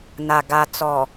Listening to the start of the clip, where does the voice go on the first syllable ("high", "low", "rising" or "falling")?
low